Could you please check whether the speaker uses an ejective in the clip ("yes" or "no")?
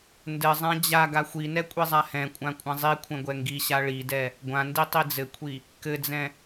yes